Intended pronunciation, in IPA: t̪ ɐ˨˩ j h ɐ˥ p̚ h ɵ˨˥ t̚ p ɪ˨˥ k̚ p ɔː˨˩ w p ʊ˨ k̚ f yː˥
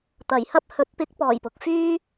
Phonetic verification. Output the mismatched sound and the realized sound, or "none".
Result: w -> j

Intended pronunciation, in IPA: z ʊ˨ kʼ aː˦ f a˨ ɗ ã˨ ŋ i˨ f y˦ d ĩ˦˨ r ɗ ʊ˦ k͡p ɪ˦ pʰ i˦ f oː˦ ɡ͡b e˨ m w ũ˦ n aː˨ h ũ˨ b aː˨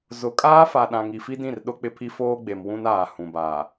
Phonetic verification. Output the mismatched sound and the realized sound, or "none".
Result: y˦ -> i˦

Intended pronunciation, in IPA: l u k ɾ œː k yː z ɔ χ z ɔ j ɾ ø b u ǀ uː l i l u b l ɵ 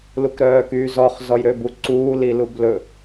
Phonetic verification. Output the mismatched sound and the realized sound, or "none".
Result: none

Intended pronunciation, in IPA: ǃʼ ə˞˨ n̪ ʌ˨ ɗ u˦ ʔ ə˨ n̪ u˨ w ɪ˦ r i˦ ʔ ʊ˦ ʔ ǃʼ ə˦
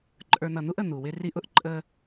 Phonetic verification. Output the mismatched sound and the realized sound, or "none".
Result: ɗ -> n̪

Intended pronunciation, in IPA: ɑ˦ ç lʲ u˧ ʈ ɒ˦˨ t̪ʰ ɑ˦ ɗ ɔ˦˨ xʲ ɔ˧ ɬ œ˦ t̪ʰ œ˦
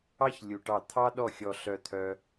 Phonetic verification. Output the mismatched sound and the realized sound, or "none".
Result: ɒ˦˨ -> ɑ˦˨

